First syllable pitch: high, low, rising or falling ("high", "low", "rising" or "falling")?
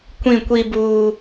falling